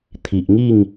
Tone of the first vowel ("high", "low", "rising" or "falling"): low